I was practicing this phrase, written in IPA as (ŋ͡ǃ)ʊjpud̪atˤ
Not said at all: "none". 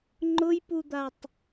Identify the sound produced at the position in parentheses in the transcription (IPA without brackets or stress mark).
ŋ͡ǃ